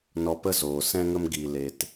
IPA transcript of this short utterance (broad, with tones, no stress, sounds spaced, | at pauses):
n ɔ˧ p ə˦ z oː˨ s ɛ̃˧ ŋ ə˧ m ɡ i˨ l e˨ t